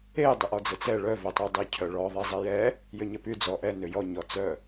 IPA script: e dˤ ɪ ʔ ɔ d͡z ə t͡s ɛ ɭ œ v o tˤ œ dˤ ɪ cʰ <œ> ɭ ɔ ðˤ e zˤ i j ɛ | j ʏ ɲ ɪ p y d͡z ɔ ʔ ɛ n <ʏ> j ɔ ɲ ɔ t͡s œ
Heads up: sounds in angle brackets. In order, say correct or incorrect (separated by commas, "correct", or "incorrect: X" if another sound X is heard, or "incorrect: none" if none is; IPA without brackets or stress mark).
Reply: correct, correct